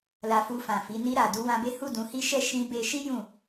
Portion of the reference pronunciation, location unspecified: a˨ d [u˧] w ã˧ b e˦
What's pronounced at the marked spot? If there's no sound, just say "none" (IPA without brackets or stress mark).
u˧